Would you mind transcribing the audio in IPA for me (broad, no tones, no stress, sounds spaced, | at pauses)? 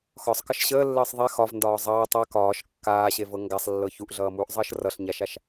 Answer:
x ɒ sˤ k ʌ ʃ ɕ əː lː əː sˤ ðˤ ɛ x ɒ v n d ɒː zˤ ʌː tˤ a k ɒː ʃ kː aː ɕ e v ɤ ŋ ɡ a sˤ lː ɤ ç u ʔ ɮ ʌː m uː ʔ zˤ əː ʃ r ʌ ɬ ɲ a ʃ a ʃ